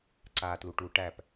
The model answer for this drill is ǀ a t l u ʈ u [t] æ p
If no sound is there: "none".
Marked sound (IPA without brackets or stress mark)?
ʈ